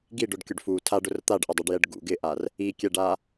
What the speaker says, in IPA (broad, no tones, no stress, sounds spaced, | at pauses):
ɡ i ɖ ʊ ɖ kʲ ʊ ɖ f u tʰ a ɖ ʊ r t̪ a ɖ ʔ ɪ dˤ i ɖ j ɛ ɖ ɡ ṵ ɡ ɪ ʔ a r | i kʲ ɛ ɖ a